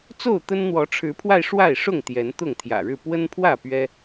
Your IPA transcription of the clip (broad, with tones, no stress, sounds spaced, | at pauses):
t͡s o˥˨ ʊ̯ t̪ ə˦ n n̪ w ɔ˨˦ ʈ͡ʂʰ ɻ̩˨˦ pʰ w a˧ ɪ̯ ʂ w a˥˨ ɪ̯ ʂ ʊ˥˨ ŋ t̪ j ɛ˨˦ n t̪ ʊ˥˨ ŋ t̪ʰ j ä̰˨˩ ɻ ɻ̩˥˨ p w ə˦ n pʰ w ä˥˨ p ɥ ɛ˦